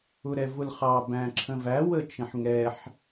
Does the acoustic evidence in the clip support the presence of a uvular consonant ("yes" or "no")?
yes